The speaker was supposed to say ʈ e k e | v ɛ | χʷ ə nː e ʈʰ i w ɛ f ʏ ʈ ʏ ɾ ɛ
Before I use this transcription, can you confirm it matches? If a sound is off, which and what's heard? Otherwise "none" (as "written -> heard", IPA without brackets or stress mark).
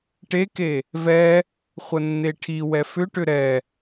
none